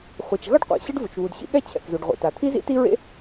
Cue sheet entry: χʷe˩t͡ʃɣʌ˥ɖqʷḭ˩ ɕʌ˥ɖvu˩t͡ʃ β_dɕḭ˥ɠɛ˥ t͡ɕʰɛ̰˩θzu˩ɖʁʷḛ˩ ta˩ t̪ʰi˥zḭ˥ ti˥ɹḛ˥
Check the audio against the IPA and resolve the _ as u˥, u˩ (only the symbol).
u˩